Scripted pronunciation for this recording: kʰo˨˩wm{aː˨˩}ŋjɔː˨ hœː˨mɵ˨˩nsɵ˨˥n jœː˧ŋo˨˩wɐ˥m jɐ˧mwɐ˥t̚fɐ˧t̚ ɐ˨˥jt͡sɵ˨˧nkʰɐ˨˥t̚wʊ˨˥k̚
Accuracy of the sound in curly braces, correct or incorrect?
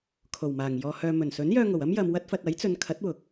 correct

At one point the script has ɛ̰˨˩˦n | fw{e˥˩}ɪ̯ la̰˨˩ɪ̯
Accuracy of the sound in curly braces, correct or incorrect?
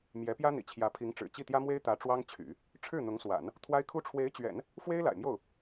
incorrect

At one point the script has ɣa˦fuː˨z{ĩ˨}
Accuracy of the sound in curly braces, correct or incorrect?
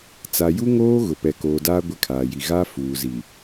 incorrect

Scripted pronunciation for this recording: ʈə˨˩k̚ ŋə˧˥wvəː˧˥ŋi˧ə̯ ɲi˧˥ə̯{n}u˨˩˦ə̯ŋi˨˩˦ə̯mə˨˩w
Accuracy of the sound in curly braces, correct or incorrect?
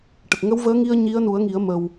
correct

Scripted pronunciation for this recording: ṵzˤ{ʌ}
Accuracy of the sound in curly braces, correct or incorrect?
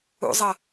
correct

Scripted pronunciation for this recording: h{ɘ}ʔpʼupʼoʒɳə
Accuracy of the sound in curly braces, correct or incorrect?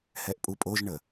incorrect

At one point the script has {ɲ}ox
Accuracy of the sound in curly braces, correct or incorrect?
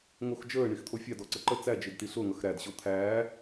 incorrect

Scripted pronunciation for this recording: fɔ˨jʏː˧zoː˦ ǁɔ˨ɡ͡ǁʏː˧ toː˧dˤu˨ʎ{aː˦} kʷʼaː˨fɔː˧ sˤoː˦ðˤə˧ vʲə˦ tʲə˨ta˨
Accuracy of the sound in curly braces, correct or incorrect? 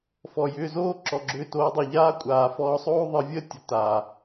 correct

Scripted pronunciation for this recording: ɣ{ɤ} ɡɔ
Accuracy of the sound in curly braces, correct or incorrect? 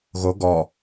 incorrect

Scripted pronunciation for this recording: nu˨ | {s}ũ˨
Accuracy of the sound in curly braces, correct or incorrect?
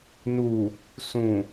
correct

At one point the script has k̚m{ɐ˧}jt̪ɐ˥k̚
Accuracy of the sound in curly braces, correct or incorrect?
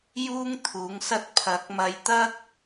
correct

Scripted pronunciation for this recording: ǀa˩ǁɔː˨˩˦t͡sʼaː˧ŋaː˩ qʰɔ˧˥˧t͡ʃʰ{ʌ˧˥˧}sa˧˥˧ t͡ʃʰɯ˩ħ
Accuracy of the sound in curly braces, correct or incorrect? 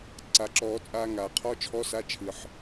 incorrect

